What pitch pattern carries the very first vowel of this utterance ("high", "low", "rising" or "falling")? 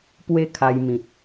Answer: falling